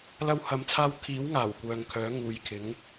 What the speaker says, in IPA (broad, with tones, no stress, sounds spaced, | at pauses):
l ɐ˥ w h ɐ˧ m t͡sʰ aː˥ w kʰ iː˨˥ w ŋ aː˨˩ w kʷ œː˨ ŋ kʰ œː˨˥ ŋ uː˨ j kʰ ɪ˨˥ ŋ